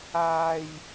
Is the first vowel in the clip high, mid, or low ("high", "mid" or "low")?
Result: low